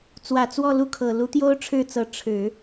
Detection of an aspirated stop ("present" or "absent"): present